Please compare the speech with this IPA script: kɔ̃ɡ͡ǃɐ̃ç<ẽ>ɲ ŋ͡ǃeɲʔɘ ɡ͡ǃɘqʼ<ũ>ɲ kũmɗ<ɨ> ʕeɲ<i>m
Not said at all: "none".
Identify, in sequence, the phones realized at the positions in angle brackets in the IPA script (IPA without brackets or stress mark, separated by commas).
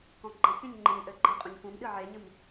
ẽ, ũ, ɨ, ɨ